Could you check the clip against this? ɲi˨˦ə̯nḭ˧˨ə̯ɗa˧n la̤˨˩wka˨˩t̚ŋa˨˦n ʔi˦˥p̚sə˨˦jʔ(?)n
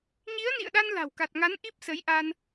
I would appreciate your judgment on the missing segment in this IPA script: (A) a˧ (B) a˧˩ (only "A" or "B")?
A